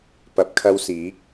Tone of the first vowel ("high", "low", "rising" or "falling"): rising